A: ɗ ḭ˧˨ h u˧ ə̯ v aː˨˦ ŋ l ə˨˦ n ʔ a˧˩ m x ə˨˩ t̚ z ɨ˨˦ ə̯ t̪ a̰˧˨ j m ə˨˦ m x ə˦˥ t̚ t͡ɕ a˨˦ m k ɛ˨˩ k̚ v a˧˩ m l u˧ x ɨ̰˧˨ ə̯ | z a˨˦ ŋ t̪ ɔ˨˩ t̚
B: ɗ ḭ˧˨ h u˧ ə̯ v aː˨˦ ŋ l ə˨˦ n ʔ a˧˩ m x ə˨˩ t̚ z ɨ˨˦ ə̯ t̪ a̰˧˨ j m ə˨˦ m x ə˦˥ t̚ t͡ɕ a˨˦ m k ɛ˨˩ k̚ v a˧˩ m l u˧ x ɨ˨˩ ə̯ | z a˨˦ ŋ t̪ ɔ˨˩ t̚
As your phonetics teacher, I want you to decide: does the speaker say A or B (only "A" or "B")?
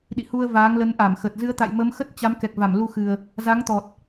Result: B